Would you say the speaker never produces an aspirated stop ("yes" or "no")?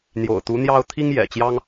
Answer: no